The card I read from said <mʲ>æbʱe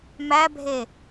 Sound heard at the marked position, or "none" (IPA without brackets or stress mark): m